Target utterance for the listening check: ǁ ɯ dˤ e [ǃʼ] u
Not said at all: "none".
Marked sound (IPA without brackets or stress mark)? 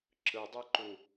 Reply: ǃ